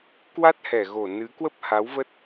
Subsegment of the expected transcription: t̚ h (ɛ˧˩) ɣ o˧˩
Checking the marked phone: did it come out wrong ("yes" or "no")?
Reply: no